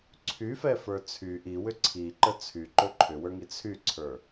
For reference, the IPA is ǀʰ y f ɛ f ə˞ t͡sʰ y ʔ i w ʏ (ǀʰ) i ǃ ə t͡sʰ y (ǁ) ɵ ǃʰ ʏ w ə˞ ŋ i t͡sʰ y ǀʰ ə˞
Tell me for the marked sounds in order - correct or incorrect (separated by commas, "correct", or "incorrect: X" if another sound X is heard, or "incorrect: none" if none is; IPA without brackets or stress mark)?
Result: correct, incorrect: ǃ